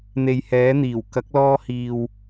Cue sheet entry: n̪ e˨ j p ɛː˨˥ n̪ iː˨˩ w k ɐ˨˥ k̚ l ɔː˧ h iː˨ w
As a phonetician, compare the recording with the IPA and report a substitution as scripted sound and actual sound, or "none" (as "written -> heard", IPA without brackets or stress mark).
p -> h